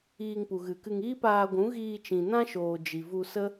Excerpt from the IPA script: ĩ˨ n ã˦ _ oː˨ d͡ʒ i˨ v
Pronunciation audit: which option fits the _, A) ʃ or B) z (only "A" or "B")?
A